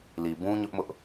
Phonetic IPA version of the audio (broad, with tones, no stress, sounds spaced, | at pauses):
l i˨ b ũ˦ ɲ ʊ˦ ʔ m ʊ˦ ʔ